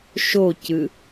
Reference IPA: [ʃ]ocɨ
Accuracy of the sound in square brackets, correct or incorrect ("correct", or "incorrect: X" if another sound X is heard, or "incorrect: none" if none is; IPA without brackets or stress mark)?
correct